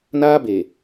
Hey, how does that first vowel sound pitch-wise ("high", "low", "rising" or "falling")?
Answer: high